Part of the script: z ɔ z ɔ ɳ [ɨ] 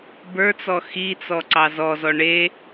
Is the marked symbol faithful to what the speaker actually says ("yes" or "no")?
no